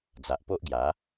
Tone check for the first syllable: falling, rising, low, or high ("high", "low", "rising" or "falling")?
low